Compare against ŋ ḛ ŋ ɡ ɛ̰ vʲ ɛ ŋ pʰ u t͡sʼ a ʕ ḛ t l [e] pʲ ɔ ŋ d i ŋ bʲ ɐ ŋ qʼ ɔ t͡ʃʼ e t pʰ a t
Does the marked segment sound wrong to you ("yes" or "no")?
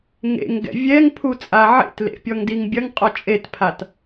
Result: yes